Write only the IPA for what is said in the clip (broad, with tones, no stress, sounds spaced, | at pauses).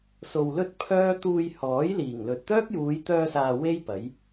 s o˧ w l ɵ˥ t̚ pʰ œː˥ t̪ uː˧ j h ɔː˨˥ j l iː˨˩ ŋ l ɵ˨ t̚ t̪ œː˥ k̚ j uː˨˧ j t̪ œː˧ s aː˨ w e˥ j p ɐ˨˥ j